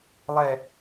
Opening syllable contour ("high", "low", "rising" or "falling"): falling